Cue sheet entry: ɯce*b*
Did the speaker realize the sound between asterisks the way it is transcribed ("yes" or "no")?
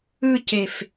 no